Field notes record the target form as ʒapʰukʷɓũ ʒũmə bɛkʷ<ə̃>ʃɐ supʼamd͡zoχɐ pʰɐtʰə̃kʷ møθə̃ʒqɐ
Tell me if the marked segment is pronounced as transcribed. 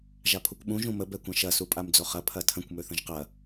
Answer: no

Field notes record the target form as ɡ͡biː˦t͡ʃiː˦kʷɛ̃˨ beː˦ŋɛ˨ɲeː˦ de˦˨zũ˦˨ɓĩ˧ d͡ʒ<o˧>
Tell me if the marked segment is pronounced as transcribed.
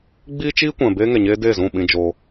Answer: yes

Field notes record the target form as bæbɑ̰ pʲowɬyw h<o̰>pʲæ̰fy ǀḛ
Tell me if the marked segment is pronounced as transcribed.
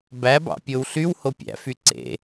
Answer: no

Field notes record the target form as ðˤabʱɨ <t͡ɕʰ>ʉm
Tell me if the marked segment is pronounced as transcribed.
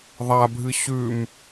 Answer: no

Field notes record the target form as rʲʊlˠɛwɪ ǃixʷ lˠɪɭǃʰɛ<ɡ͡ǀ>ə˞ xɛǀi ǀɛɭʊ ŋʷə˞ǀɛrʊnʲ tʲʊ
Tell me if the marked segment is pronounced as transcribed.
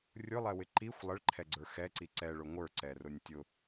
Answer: yes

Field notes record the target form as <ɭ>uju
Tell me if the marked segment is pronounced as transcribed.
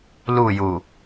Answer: no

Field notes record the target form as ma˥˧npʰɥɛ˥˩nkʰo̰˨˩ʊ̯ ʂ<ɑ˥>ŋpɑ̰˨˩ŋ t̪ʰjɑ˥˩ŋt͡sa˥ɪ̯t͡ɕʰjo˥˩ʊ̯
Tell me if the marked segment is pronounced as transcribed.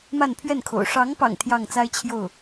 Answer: no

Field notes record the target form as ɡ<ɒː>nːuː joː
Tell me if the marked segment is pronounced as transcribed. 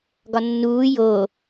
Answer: no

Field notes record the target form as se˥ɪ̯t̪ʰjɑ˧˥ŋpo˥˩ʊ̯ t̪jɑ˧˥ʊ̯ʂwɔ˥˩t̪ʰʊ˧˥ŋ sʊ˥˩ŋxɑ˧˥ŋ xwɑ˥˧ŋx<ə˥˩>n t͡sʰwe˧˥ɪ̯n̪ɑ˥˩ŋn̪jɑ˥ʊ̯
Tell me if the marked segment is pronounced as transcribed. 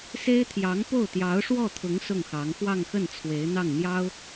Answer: yes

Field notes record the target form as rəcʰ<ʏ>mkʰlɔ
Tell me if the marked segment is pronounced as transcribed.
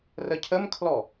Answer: no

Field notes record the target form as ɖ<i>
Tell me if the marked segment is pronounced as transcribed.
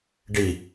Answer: yes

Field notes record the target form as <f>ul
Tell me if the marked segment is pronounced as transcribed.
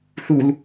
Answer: no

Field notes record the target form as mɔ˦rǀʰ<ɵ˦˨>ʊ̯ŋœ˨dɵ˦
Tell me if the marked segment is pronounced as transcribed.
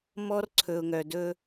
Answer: no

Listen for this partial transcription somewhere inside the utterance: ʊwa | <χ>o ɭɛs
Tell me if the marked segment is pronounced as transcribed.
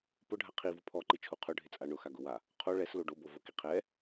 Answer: no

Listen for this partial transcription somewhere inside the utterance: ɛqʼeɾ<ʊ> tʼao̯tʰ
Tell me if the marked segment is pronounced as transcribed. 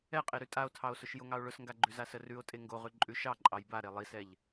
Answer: no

